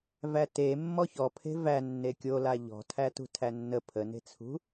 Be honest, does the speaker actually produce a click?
no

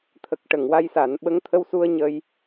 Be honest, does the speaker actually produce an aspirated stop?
yes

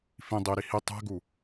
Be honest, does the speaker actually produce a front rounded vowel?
no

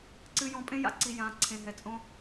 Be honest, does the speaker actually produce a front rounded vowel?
no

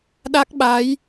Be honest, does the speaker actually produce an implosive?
yes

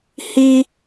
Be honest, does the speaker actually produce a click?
no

